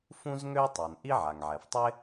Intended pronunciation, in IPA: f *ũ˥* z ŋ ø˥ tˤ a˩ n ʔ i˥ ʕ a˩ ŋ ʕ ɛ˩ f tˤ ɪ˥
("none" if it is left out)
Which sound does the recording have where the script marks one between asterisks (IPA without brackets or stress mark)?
ũ˥